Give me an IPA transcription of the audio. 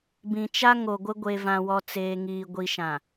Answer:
b ĩ˨ t͡ʃ a˦ ŋ o˨ ɡʷ ɪ˦ ɡʷ e˨ v ã˨ w ɔ˨ t͡s eː˨ ŋ iː˨ ɡʷ i˨ ʃ ã˨

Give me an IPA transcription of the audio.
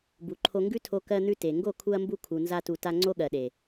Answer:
b u˨ ǃʰ o˧ ŋ ɡ ʉ˦ tʰ o˧ k ɜ˧ n̪ ʉ˧ t e˨ ŋ ɡ o˦˨ kʰ u˧ ɐ̯ m b u˧ kʰ u˨ n z a˧ t u˨ t a˧ ŋ͡ǀ o˦ ɠ ɜ˨ ɗ e˨

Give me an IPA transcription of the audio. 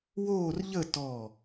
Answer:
w oː˥˧ r ʎ ə˥˧ t ɔ˧˩

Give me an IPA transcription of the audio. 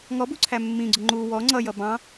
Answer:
ŋ ɔ b u ǀʰ æ mː ĩ ɡ͡ǀ ʊ ŋ͡ǃ u w ɔ ŋ͡ǀ ʌ j ʌ b ɑ̃

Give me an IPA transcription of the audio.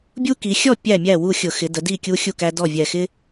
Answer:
bʲ u˦ k i˩˧ xʲ ɔ˥˨ pʲ æ˥˨ mʲ æ˥˨ w u˥˨ xʲ ʊ˧˩˧ x ɪ˩˧ d ə˩˧ d i˥˨ kʲ u˦ xʲ u˥˨ k æ˦ d ɔ˥˨ vʲ ɛ˨˩ x ɪ˦

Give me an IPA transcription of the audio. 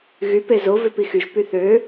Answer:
ɣ y p e z o v ø p i x y ʒ p y θ ø

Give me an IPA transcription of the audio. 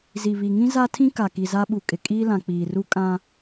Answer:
z i˨ β i˨ ŋ ĩ˦ z a˦ tʰ ĩ˦ k a˨ k i˨ z a˦ ɓ u˨ kʼ ɪ˨ kʼ iː˦ l ã˨ k͡p iː˨ r u˦ kʼ ã˦

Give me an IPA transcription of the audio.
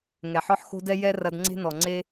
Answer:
ŋ ɛ˨ ħ ɔ˦ ħ x o̤˦ d ɛ˦ j ɛ˦ r ɐ˧ d ŋ͡ǀ e̤˦ n ɔ˨ ŋ͡ǀ e˦

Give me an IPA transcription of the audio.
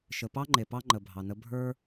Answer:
ʃ ə˨ p ɑ˦ ŋ͡ǃ e˨ p ɑ˦ ŋ͡ǃ ə˨ bʱ ɑ˨ n ə˦ bʱ ə˞˦

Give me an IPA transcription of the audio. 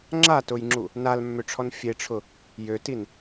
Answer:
ŋ͡ǁ a t ʊ j ŋ͡ǁ u | n a l mː ø ʈ͡ʂʰ ɔ n fʲ e ʈ͡ʂʰ ʊ | j ø t i n

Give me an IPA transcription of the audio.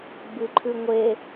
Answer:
b ɨ ǃʰ ʉ ŋʷ e

